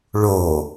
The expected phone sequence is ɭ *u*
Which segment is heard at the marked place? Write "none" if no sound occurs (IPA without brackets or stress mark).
o